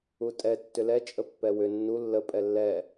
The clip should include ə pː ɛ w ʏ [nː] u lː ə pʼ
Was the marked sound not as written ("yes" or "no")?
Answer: no